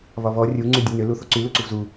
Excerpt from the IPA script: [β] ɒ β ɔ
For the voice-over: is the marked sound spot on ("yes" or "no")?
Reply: yes